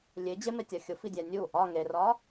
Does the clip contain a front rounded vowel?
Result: no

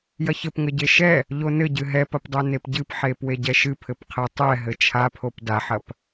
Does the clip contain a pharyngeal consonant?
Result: yes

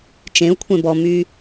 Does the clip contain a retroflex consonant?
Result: no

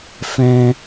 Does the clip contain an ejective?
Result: no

